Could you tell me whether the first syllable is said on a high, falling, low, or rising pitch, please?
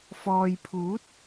low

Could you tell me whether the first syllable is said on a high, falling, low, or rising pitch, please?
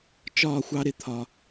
falling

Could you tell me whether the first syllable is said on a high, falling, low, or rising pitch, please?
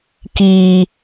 low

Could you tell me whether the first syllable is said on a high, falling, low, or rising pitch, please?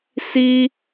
high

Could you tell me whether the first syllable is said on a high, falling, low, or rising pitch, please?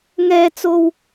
high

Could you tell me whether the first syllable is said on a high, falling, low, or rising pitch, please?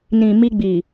low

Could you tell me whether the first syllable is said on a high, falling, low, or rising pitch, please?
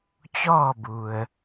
falling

